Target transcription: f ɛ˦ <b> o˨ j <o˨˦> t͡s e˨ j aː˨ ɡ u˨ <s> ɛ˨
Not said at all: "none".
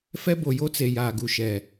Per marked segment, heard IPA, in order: b, o˦, ʃ

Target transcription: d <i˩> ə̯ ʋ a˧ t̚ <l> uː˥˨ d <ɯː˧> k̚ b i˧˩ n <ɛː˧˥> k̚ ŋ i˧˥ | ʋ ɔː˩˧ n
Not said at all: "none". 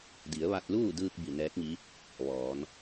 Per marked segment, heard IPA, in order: i˩˧, l, ɯː˧, ɛː˧˥

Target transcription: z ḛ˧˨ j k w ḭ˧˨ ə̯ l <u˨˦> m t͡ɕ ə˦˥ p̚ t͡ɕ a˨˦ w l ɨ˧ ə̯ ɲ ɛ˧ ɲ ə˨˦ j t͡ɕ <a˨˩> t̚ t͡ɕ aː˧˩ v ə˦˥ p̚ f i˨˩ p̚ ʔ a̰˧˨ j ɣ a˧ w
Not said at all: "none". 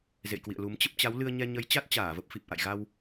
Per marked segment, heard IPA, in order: u˨˦, a˦˥

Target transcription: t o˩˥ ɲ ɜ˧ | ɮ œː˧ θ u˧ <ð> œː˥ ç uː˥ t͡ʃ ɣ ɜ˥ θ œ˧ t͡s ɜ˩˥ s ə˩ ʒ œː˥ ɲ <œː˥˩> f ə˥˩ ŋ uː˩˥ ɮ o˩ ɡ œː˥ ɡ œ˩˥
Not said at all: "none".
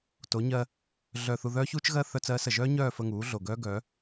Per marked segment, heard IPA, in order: ð, œː˥˩

